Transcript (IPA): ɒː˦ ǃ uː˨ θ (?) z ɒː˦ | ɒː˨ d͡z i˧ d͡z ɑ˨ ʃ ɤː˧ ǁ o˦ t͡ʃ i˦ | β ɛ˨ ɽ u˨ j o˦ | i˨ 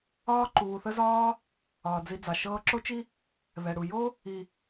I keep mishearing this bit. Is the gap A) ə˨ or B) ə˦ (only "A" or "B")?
B